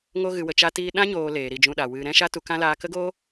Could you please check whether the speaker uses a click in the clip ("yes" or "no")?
no